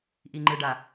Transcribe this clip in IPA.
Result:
ʔ i ŋ͡ǃ ɯ ɖ a

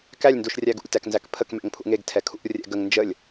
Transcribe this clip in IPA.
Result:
k æ lʲ n d u ʃ rʲ æ ɡ ṵ lʲ t æ k n z æ k pʰ ə k m ɛ̰ ŋ pʰ ṵ ŋ e ɡ tʰ ɛ kʰ ṵ rʲ ɛ̰ ɡ ə ŋ n d͡ʒ ə lʲ

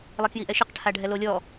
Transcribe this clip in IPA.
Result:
lˠ e k j i ʔ ɛ ʃ ɪ q ʈʰ a ɖʱ ɛ l o lʲ ɔ

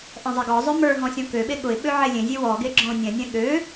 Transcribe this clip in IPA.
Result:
ʔ ɛ̃ zˤ e ɡ ɔ zˤ ø m ə˞ ɦ ɔ̃ sʲ ɔ̃ k ø ɓ e ɠ ʊ ɪ̯ ɓ ø ʕ e lʲ ẽ zʲ e w ɔ ɡ e ɡ͡ǁ ɔ̃ ʊ̯ nʲ ɛ̃ nʲ ɛ̃ ɠ ø

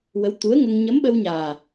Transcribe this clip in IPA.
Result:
w ə˧˥ w t̪ u˧˥ ə̯ ŋ ə˧ ŋ ɲ ə˧˥ m ɓ ə˧ w ɲ aː˨˩

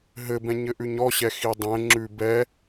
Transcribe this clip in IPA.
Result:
ɦ ɘ b ɛ̃ ɲ ɘ ʔ ʉ ɲ ɔ ɕ ɛ x i dˤ ɛ̃ ŋ͡ǁ ʉ b ɛ

